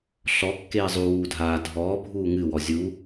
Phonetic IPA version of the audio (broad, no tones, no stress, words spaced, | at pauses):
ɬɔ kːeːzˤu wuːdʱaː dʱɔː bʱuːŋɨwɔ zʲu